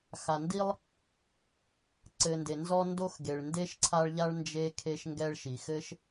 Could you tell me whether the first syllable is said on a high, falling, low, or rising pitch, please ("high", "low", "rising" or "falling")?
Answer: low